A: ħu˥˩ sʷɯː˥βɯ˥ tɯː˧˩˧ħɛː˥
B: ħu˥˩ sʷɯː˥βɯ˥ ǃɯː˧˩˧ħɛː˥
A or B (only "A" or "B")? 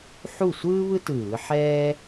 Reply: A